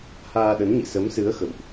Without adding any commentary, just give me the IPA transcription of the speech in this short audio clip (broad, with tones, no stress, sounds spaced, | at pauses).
h aː˧ ɗ ə˨˦ n ɲ ḭ˧˨ s ə˨˦ m s ɨ˨˦ ə̯ x ə̰˧˨ w ʔ